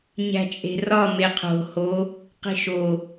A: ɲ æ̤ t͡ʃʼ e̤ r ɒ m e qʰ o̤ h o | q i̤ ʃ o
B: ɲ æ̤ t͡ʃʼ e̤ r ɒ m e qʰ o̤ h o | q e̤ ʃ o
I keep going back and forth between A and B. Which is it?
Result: A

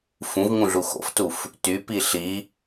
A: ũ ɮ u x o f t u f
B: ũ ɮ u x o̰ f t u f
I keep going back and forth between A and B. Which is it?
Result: B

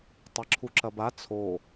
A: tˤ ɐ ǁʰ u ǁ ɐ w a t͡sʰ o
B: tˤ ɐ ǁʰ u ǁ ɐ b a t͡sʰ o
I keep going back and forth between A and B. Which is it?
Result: B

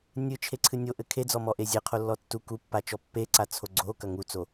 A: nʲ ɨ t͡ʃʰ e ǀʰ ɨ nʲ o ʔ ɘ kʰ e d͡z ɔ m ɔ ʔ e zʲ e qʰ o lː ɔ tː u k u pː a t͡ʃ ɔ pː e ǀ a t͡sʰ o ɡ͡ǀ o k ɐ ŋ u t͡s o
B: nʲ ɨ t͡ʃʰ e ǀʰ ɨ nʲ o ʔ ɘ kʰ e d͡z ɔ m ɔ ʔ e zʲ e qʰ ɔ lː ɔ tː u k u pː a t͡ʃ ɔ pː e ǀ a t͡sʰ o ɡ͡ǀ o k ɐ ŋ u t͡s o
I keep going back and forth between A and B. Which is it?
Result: A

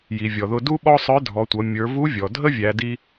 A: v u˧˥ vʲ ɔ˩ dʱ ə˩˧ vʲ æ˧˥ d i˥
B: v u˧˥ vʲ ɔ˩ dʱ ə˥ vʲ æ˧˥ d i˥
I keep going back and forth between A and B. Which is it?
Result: B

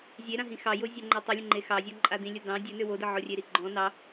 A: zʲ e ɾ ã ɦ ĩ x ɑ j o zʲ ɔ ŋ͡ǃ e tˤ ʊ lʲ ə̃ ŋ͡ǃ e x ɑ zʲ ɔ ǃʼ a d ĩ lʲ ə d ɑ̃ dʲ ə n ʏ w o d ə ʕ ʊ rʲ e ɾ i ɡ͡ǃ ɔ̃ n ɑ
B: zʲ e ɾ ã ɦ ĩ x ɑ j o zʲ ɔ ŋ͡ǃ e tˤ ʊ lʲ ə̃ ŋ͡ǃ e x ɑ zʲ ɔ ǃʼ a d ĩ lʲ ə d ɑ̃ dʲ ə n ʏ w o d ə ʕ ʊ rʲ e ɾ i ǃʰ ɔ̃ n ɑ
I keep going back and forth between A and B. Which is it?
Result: A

